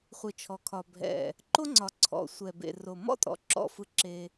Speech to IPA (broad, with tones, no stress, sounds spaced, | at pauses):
χʷ ɯ˨ t͡ʃʰ ɔ˨ kʰ ɒ˨ bʱ ɛ̰˨ | ǃ o˦ ŋ͡ǀ ɒ˨ ǀʰ ɔ̰˨ sʷ ɛ˨ b ḛ˨ r o˨ m ɔ̰˦ tʼ ɔ̰˨ ǁ ɔ̰˦ f ɯ˦ ǁ e˦